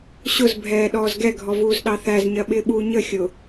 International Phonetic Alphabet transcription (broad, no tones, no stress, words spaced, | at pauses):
ɕʊzbʱɛː ɗɔːzɡɛɡʱɔvuːz ɗɑθæz ɲɜɓɪːɓuːɲə xʲʊ